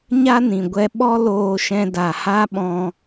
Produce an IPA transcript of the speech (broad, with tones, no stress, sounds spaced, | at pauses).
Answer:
ɲ a˦ n ĩ˨ ɡʷ ɛ˧ ɓ ɔ˦ l oː˧ ʃ ɛ̃˧ d a˨ h a˦ ɓ ɔ̃˧